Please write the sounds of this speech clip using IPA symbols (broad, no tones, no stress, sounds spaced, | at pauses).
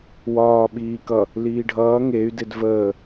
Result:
w ɒː ɓ iː k ʌ | l iː ɖʱ ʌː ŋ e y̯ d e d v əː